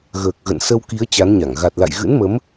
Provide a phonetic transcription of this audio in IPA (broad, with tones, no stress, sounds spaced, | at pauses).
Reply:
ɣ əː˨˩ k̚ ɣ ə̰˧˨ n s ə˧ w k i˨˦ ə̯ t͡ɕ a˨˦ n ɲ a˧˩ ŋ ɣ a˨˩ t̚ l a̰˧˨ j ɣ ɨ̰˧˥ n m ə˨˦ m